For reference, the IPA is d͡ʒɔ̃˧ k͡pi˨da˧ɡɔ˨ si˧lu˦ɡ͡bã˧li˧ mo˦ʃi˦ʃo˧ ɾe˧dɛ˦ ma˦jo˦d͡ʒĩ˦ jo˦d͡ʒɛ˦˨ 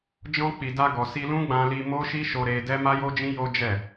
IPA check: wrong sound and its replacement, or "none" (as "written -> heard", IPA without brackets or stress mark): u˦ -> ũ˦